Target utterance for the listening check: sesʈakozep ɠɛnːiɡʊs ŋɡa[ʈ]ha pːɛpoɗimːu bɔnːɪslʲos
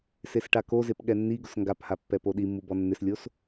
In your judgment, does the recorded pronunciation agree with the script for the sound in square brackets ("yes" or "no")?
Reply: no